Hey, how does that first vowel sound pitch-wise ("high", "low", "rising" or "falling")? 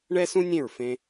high